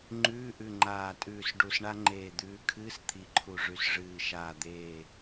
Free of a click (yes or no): no